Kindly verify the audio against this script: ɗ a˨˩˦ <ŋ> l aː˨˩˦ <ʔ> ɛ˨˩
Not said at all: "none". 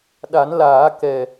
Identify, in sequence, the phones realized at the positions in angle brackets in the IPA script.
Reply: n, k

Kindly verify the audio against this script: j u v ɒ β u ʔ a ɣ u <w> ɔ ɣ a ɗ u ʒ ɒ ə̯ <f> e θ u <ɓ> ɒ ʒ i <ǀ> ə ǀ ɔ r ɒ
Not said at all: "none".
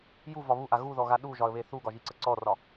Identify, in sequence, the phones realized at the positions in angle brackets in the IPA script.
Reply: ð, β, ɡ, ǀ

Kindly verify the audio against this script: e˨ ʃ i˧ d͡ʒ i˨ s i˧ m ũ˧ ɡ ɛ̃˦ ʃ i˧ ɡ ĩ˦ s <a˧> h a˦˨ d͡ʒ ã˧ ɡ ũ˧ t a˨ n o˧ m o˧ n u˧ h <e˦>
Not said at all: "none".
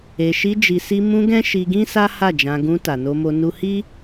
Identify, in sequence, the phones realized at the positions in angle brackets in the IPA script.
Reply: a˦, i˦

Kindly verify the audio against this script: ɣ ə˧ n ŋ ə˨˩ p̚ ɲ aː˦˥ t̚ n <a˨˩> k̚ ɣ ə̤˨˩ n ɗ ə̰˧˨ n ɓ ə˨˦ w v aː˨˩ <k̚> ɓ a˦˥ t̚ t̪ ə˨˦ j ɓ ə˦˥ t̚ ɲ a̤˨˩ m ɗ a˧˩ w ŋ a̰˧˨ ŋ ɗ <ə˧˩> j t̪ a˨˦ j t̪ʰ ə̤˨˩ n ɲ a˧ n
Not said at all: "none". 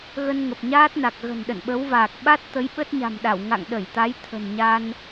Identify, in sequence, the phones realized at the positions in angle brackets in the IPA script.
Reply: a˨˩, k̚, ə˧˩

